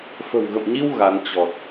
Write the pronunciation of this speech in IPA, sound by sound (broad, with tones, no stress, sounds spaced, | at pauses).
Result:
f ə̤˨˩ w ɣ ə̰˧˨ m ɲ i˧ w ɣ a˨˦ n t͡ɕ ɔ˨˩ t̚